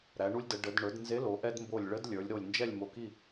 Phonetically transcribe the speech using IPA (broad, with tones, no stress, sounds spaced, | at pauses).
ɾ æ˩˧ ɳ u˧ lʲ d ə˩˧ ɖ ə˩˧ d ɳ ə˞˩˧ d n z e˨˥ l o˩˧ ʔ ɛ˧ d m b o˧˩ lʲ ɭ ə˨˥ d lʲ ə˞˩˧ lʲ ɾ o˧˩ lʲ n d͡ʒ ɛ˥˨ lʲ m o˧˩ k i˥˨